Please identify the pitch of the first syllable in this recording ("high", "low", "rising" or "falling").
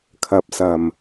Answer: low